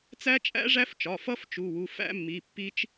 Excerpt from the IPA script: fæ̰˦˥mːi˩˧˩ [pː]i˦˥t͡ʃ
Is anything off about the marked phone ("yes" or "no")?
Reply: no